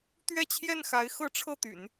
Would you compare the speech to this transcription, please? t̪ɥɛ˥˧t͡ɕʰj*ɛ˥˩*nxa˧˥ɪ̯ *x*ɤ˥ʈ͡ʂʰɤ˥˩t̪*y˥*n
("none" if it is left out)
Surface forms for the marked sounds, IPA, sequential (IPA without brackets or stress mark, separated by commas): ɛ˥˩, x, y̰˨˩˦